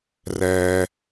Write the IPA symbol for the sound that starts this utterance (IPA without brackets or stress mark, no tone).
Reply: r